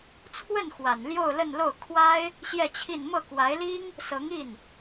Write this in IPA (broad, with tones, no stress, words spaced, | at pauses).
t͡sʰwə˥˩n xwa˨˩nljo˥˧ʊ̯lə˥˧nlo˥˩ʊ̯ kʰwa˥ɪ̯ | ɕjɛ˥˧t͡ɕʰi˥˧n mɤ˥˩kwa˧˥ɪ̯li˥ŋ | sɤ˧˥ŋi˥˩n